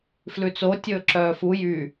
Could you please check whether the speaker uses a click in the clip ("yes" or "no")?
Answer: yes